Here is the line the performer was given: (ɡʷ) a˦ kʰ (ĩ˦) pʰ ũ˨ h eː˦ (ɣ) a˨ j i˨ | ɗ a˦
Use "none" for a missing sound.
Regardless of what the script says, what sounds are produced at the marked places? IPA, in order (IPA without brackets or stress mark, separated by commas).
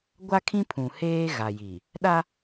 ɡʷ, ĩ˦, ɣ